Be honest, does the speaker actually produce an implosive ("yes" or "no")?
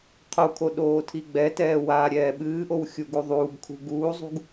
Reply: yes